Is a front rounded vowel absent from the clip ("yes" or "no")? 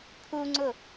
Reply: yes